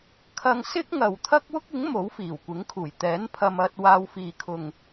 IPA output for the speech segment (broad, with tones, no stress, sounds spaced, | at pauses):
kʰ ɐ˧ ŋ s ɪ˥ k̚ ŋ ɐ˨ w t̪ʰ ɐ˥ k̚ w ʊ˥ k̚ ɪ˨˥ ŋ m o˨˥ w f iː˨˩ w kʷ ɪ˨˥ ŋ kʰ uː˨˩ j t̪ ɛː˨˥ n pʰ ɐ˧ m ɐ˧ t̚ w aː˧ w f iː˨ kʰ ʊ˨ ŋ